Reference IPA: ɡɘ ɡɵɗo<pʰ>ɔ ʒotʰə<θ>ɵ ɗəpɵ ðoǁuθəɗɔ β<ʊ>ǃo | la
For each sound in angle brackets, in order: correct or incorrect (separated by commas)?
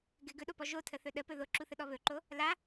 incorrect, correct, incorrect